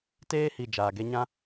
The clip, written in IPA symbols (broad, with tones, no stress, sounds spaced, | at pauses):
t eː˦ h i˨ d͡ʒ aː˨ ɡ e˦ ɲ ã˦